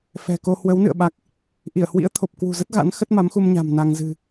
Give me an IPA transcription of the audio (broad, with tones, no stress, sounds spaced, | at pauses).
f ɛ̤˨˩ k o˧ h w ə˨˦ w n ɨ̰˧˨ ə̯ ɓ a˦˥ k̚ | ʔ i˧˩ ə̯ h w ḭ˧˥ ə̯ t̪ʰ o˨˩ p̚ k w ṳ˨˩ z ə˦˥ t̚ ɣ a̰˧˥ n x ə˦˥ t̚ m a˨˦ m x u˧ m ɲ a̤˨˩ m n a˧ ŋ z ɨ̤˨˩